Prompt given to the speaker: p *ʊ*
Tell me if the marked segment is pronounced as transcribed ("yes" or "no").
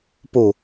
no